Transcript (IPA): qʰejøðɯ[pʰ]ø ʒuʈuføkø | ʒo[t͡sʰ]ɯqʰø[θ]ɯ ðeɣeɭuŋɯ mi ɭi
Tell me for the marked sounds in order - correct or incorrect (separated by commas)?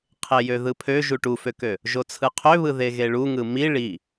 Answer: correct, correct, incorrect